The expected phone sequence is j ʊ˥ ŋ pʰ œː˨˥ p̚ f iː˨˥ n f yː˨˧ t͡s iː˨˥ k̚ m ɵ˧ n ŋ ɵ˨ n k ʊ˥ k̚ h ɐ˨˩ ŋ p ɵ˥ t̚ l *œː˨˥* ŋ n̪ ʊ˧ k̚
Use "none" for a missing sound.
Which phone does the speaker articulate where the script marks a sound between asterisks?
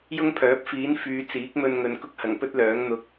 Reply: œː˨˥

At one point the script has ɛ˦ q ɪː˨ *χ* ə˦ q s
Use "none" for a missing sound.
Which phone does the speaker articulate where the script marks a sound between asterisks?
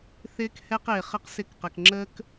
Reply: χ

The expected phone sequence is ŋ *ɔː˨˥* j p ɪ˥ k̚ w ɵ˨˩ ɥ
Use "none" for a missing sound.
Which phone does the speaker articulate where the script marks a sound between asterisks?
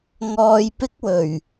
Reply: ɔː˧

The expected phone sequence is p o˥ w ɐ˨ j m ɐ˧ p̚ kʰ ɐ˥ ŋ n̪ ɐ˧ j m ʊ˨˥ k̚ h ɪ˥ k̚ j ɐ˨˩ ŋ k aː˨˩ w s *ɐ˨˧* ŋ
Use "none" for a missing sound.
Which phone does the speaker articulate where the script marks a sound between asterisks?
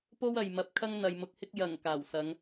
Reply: ɐ˨˧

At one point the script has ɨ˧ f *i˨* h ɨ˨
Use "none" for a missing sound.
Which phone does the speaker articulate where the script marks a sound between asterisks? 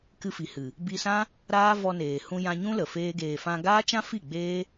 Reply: i˨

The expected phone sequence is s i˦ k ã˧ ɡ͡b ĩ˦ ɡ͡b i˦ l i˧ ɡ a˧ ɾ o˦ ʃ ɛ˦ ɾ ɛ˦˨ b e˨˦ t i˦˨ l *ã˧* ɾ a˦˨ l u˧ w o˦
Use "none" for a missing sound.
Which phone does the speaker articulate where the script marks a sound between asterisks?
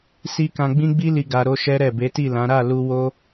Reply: ã˨˦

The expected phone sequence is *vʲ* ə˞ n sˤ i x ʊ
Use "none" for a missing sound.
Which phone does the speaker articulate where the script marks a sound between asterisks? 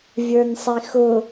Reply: vʲ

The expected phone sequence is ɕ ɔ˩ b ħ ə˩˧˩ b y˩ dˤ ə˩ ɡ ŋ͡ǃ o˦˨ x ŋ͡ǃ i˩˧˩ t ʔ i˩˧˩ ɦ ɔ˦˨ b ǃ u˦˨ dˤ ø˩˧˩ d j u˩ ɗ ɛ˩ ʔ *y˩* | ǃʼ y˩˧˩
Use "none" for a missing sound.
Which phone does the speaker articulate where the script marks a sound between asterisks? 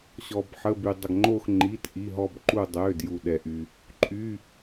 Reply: y˩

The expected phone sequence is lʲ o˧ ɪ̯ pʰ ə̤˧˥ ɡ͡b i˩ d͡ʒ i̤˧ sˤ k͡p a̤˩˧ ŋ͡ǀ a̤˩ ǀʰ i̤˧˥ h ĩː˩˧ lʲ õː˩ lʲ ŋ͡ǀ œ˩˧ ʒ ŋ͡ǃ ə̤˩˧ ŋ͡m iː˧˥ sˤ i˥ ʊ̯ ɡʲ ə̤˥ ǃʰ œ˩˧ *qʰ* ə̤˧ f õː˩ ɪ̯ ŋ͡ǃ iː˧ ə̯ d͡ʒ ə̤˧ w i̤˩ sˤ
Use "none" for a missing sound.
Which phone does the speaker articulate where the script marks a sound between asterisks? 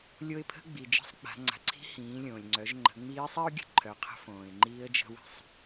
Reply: qʰ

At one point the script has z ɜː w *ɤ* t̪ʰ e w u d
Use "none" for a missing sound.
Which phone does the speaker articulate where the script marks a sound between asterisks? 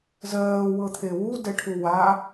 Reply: ɤ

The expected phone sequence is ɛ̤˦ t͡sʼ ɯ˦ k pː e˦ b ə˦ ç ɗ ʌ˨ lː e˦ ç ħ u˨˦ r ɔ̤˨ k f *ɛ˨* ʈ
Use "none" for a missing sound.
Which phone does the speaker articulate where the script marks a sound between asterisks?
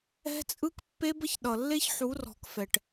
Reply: ɛ˨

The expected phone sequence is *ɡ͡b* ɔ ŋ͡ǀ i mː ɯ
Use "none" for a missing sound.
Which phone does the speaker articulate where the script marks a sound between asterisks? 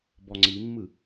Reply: b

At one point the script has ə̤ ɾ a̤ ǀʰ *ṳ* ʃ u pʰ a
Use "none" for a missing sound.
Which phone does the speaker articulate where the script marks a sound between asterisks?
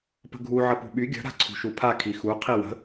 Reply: ṳ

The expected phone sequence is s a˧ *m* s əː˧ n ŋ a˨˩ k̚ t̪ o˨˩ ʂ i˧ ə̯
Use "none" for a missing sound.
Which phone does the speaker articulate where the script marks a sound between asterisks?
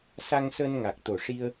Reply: ŋ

